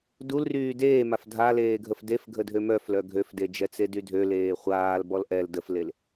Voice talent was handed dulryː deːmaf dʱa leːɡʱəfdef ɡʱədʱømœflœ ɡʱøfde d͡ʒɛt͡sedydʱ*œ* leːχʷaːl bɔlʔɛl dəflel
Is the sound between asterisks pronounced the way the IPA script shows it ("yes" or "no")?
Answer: no